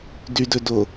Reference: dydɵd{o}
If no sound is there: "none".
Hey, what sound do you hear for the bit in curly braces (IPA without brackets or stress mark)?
o